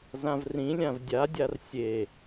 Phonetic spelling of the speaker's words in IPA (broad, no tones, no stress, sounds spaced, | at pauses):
z ã v r ĩ lʲ ã v dʲ a dʲ a r sʲ e